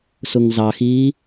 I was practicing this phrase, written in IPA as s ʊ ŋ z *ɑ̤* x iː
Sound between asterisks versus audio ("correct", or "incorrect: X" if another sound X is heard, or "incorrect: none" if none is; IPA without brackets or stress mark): incorrect: ɑ